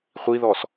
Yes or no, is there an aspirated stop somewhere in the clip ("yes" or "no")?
no